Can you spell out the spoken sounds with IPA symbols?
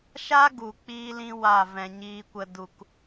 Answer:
ʃ a˦ ɡ u˨ k͡p iː˦ l ĩ˦ w a˦˨ v ɛ̃˨ ɲ iː˧ kʷ ə˧ d u˧ k

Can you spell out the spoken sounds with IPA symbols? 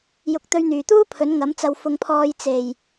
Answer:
j ʊ˧ k̚ t̪ ɵ˧ ɥ n̪ yː˨˩ t̪ uː˥ pʰ ɵ˨˥ n ŋ ɐ˨˥ m t͡s ɐ˧ w f ʊ˧ ŋ pʰ ɔː˧ j t͡s e˨˩ j

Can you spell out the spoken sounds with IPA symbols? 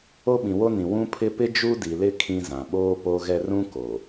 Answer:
o˦ ɓ ĩ˨ w o˦ n ĩ˨ w ũ˦ pʰ ɪ˦ p ɪ˦ d͡ʒ u˦ d i˨ l ɪ˦ kʰ ĩ˦ z ã˨ ɓ oː˦ p o˦ ɣ ɛ˦ r ũ˦ k o˨

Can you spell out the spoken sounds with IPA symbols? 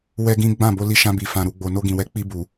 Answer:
w ɛ˦ ɡ ĩ˦ ɡ͡b ã˦˨ b o˧ l i˧ ʃ ã˧ b i˨ f ã˨ ɾ u˨ ɡ͡b o˨ n o˧ ɡ ĩ˨ w ɛ˨˦ k͡p i˧ b u˨

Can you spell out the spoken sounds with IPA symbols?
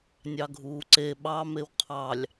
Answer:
nʲ ɑ ɡʱ uː ǀ e ɓ ɑ m e w qʰ ɑ lʲ

